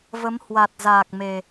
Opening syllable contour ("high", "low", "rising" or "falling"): rising